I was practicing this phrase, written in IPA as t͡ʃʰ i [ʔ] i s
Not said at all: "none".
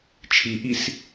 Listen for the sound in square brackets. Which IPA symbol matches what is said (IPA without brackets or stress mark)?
ʔ